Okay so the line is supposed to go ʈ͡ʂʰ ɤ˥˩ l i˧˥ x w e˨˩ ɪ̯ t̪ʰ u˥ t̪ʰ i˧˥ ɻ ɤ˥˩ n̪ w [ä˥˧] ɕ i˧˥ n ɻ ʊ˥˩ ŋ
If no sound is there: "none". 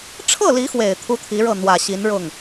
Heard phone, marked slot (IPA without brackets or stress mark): ä˨˩